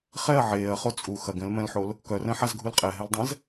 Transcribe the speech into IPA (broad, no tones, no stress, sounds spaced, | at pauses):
χ ɛ ɐ̯ ʕ eː ɐ̯ χ o t͡sʼ u x ɐ ɡ ɛ̃ l m ɛ̃ l ħ o l | k œ r ɛ̃ ħ a z ɡʱ u l qʼ ɛ ɦ ɛ l dˤ ɛ̃ z